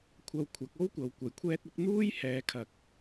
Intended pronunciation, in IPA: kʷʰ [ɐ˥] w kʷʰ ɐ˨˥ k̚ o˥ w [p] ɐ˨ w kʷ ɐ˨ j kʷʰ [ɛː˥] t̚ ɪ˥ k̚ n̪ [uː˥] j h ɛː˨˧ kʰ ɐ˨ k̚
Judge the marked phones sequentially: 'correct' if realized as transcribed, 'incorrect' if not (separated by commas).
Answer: incorrect, incorrect, correct, correct